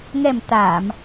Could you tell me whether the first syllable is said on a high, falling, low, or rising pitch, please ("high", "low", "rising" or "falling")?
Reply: low